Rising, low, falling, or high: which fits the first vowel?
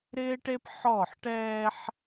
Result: high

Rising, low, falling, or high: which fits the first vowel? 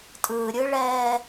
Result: low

